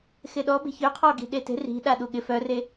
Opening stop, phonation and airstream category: implosive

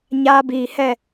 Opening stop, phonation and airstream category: plain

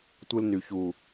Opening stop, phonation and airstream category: plain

